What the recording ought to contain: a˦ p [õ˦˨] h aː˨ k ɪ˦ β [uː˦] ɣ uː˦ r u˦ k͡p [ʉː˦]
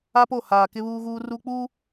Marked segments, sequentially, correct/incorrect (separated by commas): incorrect, correct, incorrect